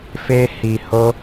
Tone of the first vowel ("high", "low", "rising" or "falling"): high